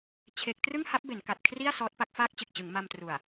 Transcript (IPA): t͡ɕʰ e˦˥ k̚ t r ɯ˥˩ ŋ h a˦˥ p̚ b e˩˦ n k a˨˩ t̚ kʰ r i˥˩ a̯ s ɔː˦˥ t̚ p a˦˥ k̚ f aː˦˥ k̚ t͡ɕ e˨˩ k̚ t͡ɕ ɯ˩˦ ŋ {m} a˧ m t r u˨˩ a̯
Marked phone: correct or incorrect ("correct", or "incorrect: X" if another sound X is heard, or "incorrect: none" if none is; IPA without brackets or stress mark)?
correct